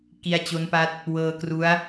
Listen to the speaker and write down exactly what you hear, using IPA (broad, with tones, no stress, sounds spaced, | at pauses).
k i˧ a̯ t͡ɕ o˦˥ n p a˦˥ t̚ | w ɤː˧ k r u˦˥ a̯